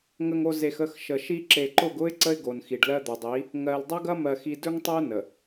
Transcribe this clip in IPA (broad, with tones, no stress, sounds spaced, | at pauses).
ŋ ə˨ ŋ o˨ z e˨ x ə˦˨ x ʃ ə˨ ʃ i˦ ǁ e˨ ǃ ʊ˦˨ ɡ ʊ˦ ɪ̯ ǀ ə˦ ɪ̯ ɡ o˨ n x i˨ ɖ l ɜ˦ d̪ ɵ˨ dˤ i˨˦ | ŋ ɜ˨ l dˤ ɐ˦ ɡ ɐ˦ m ɜ˨ x i˨ d ɵ˦ ŋ tˤ ə˦ ʊ̯ n ə˨